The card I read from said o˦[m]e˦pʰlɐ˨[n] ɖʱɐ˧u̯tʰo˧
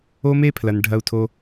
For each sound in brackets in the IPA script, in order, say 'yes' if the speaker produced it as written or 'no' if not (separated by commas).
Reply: yes, yes